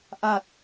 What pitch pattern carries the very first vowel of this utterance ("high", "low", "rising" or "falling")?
low